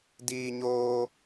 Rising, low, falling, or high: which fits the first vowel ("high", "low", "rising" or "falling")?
high